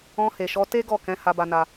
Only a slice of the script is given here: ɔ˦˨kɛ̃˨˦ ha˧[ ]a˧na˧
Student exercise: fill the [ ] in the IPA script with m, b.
b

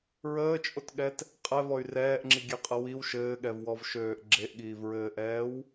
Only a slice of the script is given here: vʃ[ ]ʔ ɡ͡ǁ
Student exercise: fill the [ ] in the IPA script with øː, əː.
øː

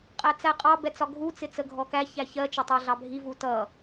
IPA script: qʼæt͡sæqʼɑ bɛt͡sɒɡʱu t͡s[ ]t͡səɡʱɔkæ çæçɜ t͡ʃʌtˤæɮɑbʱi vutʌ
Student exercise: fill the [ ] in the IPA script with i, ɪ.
ɪ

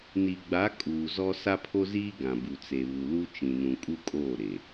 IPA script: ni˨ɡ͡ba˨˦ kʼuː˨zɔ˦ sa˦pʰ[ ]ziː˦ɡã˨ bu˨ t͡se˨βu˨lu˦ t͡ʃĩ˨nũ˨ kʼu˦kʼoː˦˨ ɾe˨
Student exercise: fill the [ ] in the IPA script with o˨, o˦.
o˦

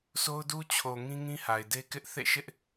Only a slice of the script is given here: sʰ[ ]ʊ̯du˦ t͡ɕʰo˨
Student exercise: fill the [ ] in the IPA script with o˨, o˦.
o˦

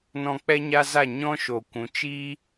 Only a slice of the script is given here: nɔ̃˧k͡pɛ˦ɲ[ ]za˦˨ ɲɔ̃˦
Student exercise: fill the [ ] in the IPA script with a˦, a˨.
a˦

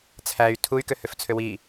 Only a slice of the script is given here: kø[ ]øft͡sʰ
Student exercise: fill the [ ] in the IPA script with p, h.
h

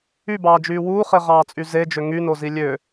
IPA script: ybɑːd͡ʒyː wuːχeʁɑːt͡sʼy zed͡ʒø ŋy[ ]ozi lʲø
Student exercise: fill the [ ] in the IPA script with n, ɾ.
n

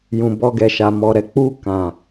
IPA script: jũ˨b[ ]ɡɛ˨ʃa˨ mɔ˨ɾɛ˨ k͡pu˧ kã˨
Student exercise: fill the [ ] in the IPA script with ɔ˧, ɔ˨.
ɔ˧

